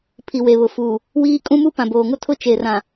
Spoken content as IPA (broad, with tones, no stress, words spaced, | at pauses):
pʰi˨we˨βʊ˨fu˨ | wiː˦ kʼũ˦mu˦ pã˨boː˨ ŋʊ˦ tʰʊ˦t͡ʃe˨rã˨